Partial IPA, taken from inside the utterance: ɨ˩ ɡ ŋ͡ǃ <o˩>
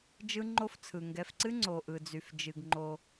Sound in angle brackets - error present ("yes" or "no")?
yes